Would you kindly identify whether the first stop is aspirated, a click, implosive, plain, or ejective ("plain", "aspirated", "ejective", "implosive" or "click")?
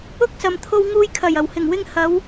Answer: plain